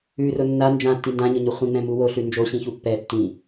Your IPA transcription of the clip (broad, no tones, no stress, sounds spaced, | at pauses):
ʉ r ʊ nː a n d͡ʒ ã tː i n d ã ɲ ʊ ɲ u χʷ ĩ ŋ͡m ɛ̃ m u w o ɬ ʉ n d͡ʒ o ɕ ĩ ç u pː ɛ tː ĩ